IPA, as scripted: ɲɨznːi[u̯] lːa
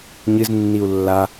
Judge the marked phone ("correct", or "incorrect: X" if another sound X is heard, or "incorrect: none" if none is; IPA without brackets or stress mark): correct